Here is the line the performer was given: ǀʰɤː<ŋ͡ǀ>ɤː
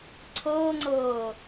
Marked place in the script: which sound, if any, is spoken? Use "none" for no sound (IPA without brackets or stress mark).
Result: ŋ͡ǀ